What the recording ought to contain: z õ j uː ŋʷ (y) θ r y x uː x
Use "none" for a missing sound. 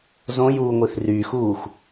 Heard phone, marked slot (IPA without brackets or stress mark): i